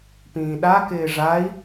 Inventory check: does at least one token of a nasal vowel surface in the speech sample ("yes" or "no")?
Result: yes